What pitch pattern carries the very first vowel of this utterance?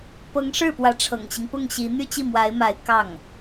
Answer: rising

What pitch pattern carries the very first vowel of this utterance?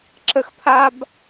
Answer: high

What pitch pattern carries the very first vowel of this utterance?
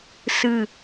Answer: falling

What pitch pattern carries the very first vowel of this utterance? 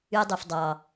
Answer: low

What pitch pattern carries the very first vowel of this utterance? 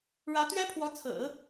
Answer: rising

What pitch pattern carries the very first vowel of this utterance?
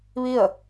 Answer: falling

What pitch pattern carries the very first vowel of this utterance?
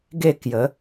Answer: falling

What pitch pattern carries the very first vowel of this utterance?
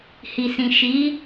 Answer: low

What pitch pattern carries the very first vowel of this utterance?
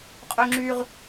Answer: high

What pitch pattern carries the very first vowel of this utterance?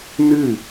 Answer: falling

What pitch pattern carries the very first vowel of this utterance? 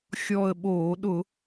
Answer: falling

